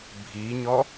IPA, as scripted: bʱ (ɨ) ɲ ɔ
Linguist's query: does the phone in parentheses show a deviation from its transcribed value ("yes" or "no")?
yes